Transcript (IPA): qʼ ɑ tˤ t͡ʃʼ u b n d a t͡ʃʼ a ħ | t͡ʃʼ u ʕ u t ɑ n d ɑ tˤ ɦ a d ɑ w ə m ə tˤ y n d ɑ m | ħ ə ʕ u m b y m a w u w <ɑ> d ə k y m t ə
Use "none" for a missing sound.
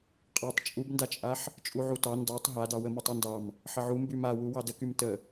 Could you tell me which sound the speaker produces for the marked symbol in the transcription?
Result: ɑ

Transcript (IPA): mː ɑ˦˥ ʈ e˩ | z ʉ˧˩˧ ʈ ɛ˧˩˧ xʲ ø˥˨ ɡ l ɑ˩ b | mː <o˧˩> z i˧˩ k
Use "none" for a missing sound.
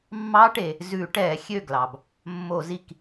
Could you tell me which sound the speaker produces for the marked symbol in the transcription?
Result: o˧˩˧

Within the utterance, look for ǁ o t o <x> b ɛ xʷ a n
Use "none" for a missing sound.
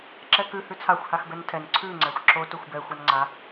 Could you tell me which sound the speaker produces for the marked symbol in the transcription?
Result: xʷ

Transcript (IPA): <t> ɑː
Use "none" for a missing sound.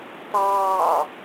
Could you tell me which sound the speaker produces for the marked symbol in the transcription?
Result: t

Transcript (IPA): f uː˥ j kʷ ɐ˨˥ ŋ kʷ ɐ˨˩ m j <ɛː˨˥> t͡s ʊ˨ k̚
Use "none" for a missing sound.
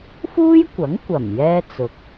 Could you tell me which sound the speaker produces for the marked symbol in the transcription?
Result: ɛː˥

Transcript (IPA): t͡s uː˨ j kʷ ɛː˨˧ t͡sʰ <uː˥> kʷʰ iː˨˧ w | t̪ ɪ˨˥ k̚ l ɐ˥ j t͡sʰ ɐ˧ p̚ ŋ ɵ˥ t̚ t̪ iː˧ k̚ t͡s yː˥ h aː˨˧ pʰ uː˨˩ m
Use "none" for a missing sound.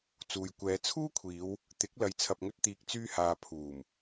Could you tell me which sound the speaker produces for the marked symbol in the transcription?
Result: uː˥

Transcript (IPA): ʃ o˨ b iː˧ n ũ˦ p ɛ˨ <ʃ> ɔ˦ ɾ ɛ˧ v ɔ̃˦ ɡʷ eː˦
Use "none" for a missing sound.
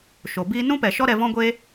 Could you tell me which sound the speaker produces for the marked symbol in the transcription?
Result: ʃ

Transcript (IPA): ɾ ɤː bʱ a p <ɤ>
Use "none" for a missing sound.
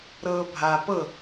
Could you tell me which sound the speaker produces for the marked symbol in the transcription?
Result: ɤ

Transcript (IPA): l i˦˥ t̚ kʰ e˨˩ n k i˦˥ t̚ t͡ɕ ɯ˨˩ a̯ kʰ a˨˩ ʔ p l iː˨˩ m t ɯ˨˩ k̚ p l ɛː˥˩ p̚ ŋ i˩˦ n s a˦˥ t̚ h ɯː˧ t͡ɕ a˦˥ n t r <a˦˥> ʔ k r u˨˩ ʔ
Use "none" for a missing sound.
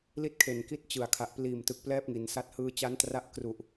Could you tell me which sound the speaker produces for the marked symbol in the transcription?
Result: a˦˥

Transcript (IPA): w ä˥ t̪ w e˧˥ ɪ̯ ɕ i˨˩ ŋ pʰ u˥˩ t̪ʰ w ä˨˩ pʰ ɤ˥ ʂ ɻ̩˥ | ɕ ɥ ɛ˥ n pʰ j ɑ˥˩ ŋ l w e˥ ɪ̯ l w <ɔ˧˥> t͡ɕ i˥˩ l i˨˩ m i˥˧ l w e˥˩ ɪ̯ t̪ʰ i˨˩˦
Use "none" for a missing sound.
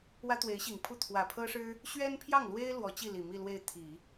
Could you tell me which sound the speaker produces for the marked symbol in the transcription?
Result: ɔ˧˥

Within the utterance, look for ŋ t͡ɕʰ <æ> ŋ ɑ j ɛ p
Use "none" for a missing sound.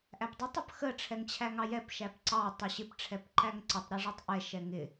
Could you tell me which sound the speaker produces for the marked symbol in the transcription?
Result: æ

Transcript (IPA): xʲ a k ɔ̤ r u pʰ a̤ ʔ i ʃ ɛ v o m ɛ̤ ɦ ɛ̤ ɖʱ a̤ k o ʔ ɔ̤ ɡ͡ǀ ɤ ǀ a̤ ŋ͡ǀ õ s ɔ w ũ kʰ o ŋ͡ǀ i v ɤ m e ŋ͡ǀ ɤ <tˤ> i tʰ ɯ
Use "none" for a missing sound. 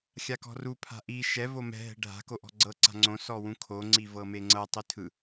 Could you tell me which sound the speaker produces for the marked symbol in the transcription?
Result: tˤ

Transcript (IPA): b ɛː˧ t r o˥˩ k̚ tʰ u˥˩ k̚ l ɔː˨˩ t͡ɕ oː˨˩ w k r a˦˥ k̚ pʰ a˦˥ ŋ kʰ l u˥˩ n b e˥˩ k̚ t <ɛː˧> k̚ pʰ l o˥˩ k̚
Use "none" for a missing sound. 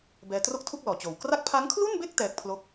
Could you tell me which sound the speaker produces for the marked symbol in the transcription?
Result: ɛː˦˥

